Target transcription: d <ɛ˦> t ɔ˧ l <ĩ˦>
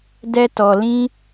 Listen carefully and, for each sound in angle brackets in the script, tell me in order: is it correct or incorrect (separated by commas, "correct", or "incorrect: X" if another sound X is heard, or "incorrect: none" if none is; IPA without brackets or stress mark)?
correct, correct